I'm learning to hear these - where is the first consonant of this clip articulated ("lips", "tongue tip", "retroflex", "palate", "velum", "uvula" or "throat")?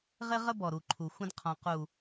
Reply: uvula